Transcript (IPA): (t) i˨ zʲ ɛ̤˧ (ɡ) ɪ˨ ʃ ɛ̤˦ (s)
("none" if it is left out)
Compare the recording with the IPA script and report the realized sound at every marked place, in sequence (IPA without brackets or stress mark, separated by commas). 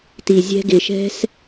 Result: t, ɡ, s